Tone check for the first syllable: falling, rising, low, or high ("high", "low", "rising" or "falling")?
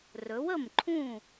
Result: rising